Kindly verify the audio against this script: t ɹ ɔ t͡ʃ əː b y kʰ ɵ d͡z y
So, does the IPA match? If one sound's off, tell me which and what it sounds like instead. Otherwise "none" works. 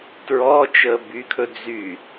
none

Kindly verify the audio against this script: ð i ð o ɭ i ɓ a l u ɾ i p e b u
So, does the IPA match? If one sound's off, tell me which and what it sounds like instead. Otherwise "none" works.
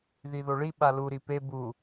none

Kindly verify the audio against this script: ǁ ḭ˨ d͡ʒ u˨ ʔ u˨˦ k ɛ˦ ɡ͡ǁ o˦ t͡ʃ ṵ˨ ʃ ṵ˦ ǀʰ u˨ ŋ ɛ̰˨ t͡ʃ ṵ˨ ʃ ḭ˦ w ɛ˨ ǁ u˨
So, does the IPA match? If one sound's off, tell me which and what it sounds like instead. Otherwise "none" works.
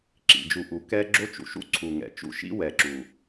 none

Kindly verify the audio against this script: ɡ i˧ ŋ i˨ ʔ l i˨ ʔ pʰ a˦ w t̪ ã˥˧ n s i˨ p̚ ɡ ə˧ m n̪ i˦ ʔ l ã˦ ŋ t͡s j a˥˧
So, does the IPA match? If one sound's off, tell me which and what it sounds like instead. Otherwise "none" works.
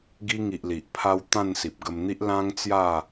none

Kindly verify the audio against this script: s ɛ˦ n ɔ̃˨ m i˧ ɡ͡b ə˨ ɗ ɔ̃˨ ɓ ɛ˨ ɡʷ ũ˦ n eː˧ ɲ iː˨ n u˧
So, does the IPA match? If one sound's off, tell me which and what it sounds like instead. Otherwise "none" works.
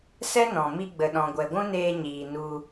ɓ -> ɡʷ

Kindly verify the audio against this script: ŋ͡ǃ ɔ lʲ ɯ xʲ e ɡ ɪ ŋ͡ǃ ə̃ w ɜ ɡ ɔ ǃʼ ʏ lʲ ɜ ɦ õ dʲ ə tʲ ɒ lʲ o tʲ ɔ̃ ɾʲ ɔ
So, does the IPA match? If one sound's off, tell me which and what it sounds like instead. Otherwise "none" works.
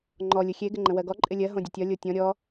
ʏ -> ɪ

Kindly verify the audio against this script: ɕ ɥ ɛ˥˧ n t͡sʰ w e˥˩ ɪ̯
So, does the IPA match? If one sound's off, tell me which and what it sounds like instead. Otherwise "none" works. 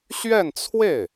none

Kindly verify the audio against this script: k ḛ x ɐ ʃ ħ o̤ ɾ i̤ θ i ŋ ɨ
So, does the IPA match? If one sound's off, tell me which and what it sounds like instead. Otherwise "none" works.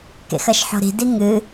θ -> d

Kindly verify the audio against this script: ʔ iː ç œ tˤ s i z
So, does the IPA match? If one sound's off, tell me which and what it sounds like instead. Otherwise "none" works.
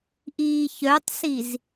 none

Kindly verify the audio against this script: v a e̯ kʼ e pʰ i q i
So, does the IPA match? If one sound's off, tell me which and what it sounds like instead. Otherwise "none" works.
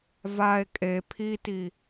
q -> t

